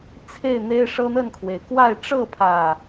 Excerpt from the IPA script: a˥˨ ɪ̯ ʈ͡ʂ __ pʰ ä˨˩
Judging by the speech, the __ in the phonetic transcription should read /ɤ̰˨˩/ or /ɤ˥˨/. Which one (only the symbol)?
ɤ˥˨